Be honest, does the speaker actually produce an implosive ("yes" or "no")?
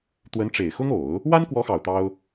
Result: no